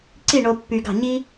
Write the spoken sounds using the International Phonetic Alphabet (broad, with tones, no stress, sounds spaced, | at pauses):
ǀ i˥˩ ɳ o˧ pː y˧ ɡ ɑ̤˥˩ ɲ i˥